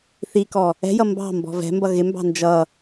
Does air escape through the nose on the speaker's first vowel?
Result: no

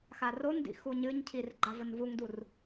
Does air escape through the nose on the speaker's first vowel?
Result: no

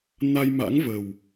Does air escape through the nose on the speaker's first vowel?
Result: no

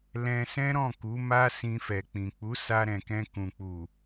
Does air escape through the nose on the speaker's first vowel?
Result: yes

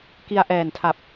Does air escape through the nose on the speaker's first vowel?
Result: no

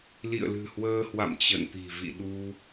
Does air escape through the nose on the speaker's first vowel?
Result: no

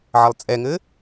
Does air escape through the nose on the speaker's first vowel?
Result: no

